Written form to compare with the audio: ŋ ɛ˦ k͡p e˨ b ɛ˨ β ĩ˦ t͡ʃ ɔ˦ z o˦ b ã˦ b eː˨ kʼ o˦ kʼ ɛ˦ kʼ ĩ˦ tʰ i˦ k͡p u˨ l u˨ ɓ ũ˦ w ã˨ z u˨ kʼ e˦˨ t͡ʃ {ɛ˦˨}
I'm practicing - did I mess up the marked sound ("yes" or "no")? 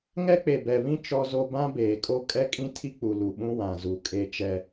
no